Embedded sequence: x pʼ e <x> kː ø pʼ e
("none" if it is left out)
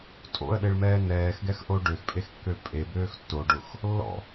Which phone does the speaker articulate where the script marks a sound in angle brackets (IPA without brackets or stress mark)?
x